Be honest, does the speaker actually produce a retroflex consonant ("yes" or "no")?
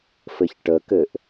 yes